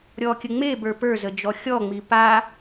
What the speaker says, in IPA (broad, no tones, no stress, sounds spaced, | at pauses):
ɾʲ ɔ kʲ ə ŋ͡m e b ə˞ p ə˞ z ə d͡ʒ ɔ xʲ ɔ ŋ͡m i p a